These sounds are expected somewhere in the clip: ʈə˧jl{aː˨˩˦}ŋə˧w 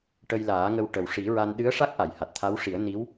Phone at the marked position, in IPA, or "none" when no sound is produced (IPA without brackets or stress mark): aː˨˩˦